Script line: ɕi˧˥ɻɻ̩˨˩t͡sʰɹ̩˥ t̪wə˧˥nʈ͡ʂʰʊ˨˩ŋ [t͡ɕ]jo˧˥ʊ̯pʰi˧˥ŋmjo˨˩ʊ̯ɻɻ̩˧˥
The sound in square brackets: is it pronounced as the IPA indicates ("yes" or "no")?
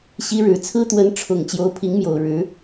yes